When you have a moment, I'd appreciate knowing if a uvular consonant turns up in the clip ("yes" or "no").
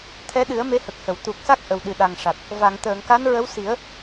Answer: no